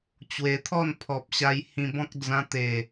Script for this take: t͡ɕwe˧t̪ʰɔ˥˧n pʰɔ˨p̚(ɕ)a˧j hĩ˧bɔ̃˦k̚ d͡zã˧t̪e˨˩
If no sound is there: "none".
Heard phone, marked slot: ɕ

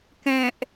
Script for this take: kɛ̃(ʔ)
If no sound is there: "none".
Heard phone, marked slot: ʔ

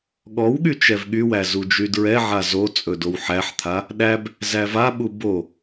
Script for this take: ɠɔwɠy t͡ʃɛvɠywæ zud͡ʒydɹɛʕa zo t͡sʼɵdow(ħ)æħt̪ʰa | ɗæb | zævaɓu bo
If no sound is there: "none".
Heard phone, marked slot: ħ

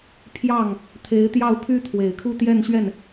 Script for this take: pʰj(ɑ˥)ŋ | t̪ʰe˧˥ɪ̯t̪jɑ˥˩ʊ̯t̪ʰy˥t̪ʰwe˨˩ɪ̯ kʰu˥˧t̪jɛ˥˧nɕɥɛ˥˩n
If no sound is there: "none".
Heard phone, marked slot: ɑ˥˩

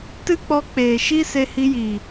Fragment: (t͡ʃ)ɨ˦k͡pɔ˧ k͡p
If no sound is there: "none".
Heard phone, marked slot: t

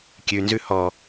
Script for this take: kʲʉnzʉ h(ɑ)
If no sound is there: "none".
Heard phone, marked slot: ɔ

